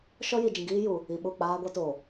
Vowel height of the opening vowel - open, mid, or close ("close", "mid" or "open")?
mid